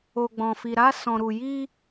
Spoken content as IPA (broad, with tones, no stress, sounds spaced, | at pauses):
o˧ ɡ͡b ɔ̃˧ f i˧ ɾ a˦ s ɔ̃˧ ɾ u˧ j i˦